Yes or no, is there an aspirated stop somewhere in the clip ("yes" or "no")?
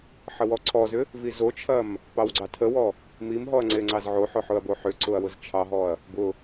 yes